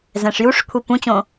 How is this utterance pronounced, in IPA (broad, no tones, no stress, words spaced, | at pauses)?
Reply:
zɛ̃ʂjuʂkʷʰi pũt͡ɕõ